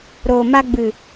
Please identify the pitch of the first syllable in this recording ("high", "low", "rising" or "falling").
low